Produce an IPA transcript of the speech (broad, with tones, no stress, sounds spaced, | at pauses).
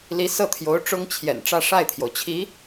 l i˧˥ s ɤ˥˩ t̪ʰ j o˧˥ ʊ̯ ʈ͡ʂ ʊ˥ ŋ t͡ɕʰ j ɛ̰˨˩ n ʈ͡ʂ ä˥˧ ʂ a˥˩ ɪ̯ t̪ʰ j o˩ ʊ̯ t͡ɕʰ i˧˥